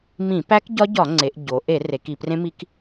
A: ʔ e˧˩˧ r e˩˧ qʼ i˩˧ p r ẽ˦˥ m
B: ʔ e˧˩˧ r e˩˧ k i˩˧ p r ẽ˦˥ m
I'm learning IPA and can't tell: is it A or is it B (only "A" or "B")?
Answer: B